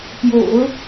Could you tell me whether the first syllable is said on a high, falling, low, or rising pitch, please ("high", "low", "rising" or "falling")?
low